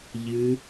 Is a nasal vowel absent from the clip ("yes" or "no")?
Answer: yes